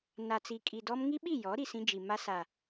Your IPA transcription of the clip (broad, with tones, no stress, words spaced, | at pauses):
na˨t͡si˨ kʼi˨dɔ˦m ŋi˦ɓi˦˨jɔ˨˦ ɾi˨sĩ˦d͡ʒi˨ ma˦sa˨